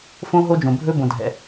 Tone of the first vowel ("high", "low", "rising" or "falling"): high